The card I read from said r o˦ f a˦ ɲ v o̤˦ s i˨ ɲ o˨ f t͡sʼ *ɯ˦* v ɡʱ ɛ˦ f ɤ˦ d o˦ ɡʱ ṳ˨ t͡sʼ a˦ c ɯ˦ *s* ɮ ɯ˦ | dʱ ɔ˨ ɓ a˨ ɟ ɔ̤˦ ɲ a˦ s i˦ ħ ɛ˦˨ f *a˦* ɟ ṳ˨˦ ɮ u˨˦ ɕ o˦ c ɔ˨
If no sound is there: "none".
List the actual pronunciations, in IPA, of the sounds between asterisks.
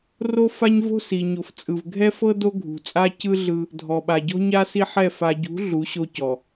ɯ˨, none, a˨

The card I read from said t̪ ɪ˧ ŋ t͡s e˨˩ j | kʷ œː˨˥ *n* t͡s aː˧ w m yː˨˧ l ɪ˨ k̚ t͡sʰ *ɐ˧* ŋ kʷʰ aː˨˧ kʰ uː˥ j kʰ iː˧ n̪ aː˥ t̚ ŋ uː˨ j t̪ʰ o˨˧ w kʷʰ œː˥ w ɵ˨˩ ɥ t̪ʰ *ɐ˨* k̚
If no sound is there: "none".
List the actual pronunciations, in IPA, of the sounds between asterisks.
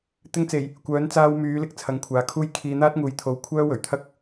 n, ɐ˨˧, ɐ˥

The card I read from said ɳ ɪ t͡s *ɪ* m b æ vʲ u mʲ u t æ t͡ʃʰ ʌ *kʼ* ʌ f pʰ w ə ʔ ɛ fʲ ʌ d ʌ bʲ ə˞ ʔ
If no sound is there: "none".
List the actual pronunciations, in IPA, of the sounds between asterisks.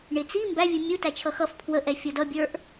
i, x

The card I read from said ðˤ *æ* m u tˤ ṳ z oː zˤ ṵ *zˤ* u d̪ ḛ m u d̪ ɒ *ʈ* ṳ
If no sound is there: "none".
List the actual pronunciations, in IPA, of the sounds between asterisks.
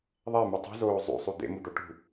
æ, sˤ, ʈ

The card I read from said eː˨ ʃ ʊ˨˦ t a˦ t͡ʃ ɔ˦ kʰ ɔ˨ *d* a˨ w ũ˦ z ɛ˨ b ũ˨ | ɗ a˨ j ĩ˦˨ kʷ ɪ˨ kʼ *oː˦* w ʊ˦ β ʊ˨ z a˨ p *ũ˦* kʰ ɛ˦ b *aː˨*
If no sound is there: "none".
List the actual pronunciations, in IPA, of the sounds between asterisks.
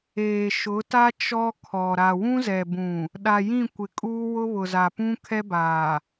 ɾ, uː˦, ũ˦, aː˨

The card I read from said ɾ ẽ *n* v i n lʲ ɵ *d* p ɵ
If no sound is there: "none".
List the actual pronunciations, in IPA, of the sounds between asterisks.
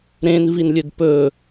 n, d

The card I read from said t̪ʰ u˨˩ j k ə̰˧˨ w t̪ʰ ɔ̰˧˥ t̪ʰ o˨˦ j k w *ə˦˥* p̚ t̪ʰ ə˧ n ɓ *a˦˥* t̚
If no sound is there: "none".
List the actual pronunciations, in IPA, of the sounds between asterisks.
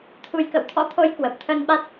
ə˨˩, a˦˥

